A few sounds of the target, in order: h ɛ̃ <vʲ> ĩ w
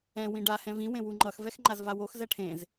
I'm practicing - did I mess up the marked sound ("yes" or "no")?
yes